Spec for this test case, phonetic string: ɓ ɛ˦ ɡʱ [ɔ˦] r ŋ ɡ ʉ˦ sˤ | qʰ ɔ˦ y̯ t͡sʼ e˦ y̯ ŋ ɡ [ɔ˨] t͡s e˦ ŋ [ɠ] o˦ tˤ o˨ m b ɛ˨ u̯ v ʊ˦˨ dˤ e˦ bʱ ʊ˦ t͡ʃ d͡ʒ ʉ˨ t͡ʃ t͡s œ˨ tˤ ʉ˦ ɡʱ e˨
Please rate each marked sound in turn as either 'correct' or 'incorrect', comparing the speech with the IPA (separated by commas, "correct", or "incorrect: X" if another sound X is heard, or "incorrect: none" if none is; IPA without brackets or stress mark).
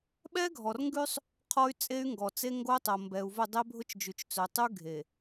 incorrect: ɔ˨, correct, incorrect: ɡ